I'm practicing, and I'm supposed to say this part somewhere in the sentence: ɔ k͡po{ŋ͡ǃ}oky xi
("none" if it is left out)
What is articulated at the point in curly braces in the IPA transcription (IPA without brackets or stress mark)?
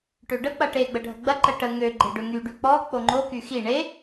ŋ͡ǃ